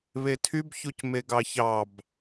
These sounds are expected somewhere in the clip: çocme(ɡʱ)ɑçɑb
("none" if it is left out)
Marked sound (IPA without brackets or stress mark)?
ɡ